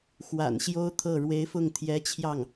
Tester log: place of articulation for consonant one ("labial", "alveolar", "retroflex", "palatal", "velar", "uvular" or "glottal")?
velar